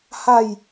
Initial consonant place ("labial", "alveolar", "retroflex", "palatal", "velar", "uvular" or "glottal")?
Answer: glottal